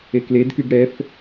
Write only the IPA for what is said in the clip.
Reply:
ekledkyɡ ɽɛf

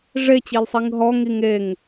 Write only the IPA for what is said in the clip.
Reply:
ʐet͡ɕilsˤiŋ ɦɔŋi ŋeŋ

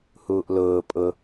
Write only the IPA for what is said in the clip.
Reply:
huːʔlʊː pʼʊ

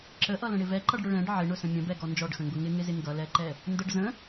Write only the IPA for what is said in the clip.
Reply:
ǁəʔʌlə̃ɽɪ vɛǃʌɖɽʊ ɭɛ̃ɖ ʕɪɳʊsə̃ mʲə̃bɛɡɔ nd͡ʒɔɖxə̃ŋɡʊ ŋɪŋɪzɪ ŋɡʌlɛǃɛ | ndəɖ zə̃

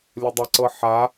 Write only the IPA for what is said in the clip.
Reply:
lʲədˤəǀɤ ħa

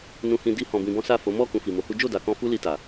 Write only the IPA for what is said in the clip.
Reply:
nũ˨hĩ˨di˨˦ hɔ̃˧bĩ˧bɔ̃˦ sa˦˨fo˨˦ mɔ˦˨ kũ˧fi˨mo˨˦hu˦ d͡ʒo˦˨da˨kɔ̃˧ fu˦li˧ta˨

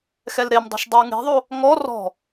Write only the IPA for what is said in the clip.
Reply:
xɛlɾemdˤo̤ʃ dˤɯwŋe̤ðˤo | ŋɔ rɔ̤

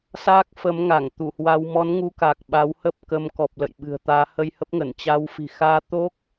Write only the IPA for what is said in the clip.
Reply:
saː˦˥k̚fə˨˦mŋa˧˩ŋ t̪u˧˩hwa˧w mɔ˨˦nŋu˨˦ ka˨˩k̚ɓa˨˦whə˦˥p̚kə˨˦m kɔ˨˩p̚lə̰˧˨j ɓɨ̤˨˩ə̯t̪aː˨˦ hə˧j hə˦˥p̚ŋə˧˩nt͡ɕa˧w fi̤˨˩xaː˧t̪o˦˥k̚

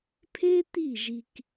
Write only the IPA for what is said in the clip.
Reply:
pʰe˦t̪i˦˨ ʒi˦k

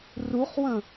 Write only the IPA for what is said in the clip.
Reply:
ruχwə̃

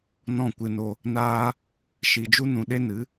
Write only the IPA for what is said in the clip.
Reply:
nɔ̃˦˨kʷɨ˧no˧ | naː˦ | ʃi˨d͡ʒu˦ nũ˧ ɗe˦nɨ˨˦

